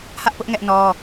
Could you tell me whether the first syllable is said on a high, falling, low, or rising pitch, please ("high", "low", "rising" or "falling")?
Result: high